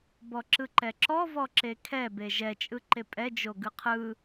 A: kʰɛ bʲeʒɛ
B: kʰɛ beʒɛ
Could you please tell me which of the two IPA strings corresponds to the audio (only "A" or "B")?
B